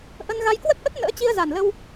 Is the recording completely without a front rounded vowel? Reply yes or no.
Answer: yes